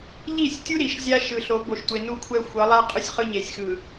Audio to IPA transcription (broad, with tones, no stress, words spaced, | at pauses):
ʎi˦˨sʲtʲu˦ ɾi˨ʃzʲa˦ ʃɯ˨ɬo˨˦ bo˨ʃtʷe˨ nu˦kʷʰɛ˦ xʷʌ˨˦lˠa˦ qʼɯ˦sʲχɯ˦ ɲe˨sʲxɯ˨